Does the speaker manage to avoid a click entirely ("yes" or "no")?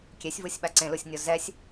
no